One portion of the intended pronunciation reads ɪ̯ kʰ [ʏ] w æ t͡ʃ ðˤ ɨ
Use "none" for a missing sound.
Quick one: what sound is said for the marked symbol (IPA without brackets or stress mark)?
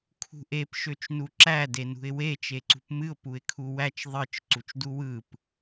u